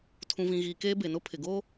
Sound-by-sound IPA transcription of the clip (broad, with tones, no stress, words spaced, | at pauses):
tʰũ˨vĩ˨ɣiː˨ keː˦be˨nʊ˦ pʰɪ˨ɡoː˦